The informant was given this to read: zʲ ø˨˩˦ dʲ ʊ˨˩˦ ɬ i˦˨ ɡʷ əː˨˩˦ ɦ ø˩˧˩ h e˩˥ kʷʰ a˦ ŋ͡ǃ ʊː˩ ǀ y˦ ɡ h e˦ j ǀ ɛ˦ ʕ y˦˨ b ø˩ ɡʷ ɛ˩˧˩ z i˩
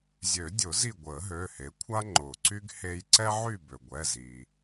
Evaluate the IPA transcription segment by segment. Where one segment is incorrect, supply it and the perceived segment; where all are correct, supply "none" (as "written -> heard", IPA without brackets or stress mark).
ɬ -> z